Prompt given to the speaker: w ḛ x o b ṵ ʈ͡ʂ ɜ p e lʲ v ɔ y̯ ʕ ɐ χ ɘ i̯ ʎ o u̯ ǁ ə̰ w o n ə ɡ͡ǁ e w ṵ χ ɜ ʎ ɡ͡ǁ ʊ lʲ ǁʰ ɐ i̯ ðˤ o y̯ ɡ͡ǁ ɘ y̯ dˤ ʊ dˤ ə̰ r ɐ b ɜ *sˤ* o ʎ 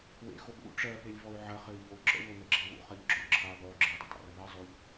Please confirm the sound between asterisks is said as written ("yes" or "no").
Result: no